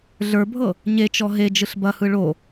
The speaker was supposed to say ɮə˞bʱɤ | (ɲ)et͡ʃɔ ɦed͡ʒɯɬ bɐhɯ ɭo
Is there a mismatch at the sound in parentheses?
no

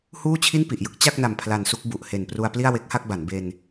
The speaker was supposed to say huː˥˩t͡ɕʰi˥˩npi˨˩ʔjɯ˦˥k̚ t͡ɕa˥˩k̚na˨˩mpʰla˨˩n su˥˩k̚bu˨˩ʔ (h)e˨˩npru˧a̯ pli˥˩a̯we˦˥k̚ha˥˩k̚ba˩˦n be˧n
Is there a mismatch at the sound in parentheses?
no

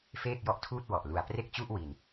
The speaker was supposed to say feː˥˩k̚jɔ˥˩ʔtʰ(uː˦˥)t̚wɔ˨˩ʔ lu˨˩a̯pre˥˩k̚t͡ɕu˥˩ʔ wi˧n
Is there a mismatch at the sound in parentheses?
yes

